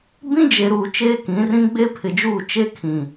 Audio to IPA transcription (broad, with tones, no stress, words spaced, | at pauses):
bĩ˦d͡ʒe˨ɾuː˨ t͡ʃeː˦kĩ˨˦rĩ˦ ɡ͡be˦pʰɪ˨d͡ʒuː˦˨ t͡ʃe˦kʰĩ˨